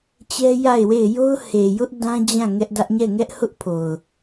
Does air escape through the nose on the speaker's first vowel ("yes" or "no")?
no